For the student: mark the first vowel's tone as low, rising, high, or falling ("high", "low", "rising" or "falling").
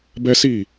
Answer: high